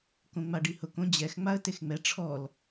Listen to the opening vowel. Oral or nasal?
nasal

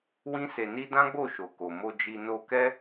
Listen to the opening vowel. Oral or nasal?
nasal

